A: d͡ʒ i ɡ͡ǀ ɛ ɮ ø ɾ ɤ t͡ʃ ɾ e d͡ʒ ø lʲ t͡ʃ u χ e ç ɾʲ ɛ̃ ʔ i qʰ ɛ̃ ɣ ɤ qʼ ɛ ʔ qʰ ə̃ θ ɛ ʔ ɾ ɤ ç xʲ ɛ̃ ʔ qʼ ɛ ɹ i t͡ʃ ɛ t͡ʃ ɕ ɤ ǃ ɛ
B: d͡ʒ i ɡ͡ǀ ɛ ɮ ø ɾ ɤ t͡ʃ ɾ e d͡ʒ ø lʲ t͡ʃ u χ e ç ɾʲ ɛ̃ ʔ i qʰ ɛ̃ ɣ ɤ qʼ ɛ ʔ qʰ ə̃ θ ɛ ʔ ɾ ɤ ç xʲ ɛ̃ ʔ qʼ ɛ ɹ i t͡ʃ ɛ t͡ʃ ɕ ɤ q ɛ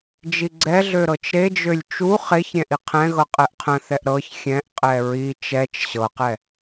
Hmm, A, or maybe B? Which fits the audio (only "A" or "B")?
B